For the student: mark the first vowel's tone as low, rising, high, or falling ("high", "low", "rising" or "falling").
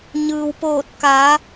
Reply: low